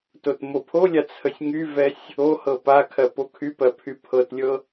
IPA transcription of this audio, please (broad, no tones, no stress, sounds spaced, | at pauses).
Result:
t o t m o pʰ o lʲ a t͡sʰ ə sʲ ŋ y v ɛ sʲ | o h ɤ p a kʰ ɜ p o kʰ y p ɜ pʰ y pʰ ɤ t lʲ ɤ